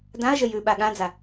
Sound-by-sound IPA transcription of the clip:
dãɐ̯ʒə jʉɓa ɠãd͡za

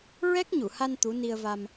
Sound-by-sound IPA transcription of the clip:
ɹɛ˦˥k̚ɲu˨˩˨ha˧n t̪u˧˥ni˧ə̯va˧m

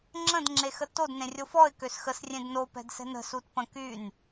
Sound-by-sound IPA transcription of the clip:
ŋ͡ǁə̃d ŋ͡ǁexətod nẽrʲofɔɪ̯ køsxəs rʲẽdno pɛ̤dsɛ̤nə̤ sutpə̃ kyn

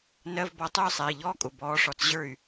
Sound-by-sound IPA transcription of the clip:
nɜ˧˥˧vbɔ˧˥tˤʊː˥˧sˤɛ˩˧˩i̯ ʎɔː˥˧kʼʊ˩˧˩ bɔː˧˥ʂɔ˧˩t͡s ʑə˞˥˩y̯

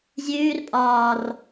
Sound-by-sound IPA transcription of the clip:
zʲʉːr pʼɒːr

